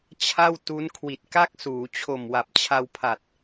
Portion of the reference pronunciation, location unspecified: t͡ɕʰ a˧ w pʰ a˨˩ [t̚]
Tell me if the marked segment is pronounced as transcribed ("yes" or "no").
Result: yes